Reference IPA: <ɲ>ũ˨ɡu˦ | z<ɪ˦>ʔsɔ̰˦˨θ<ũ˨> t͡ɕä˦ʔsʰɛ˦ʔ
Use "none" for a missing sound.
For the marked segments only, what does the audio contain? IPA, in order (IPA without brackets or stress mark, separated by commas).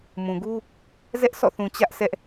m, ɛ˦, ũ˨